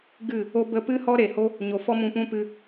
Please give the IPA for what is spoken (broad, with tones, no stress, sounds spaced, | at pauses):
ɡ ɨ˦˨ | o˧ b ə˧ p ɨ˦ h ɔ˦ ɾ e˨ h o˦ | ɲ o˨ f ɔ˦ m ũ˧ p ũ˦ p ɨ˧